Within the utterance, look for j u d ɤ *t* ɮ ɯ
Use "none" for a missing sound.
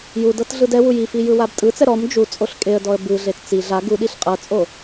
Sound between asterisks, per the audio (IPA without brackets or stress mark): t